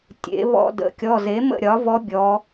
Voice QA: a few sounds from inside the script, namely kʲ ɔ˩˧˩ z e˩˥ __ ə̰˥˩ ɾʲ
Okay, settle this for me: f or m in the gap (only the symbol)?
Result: m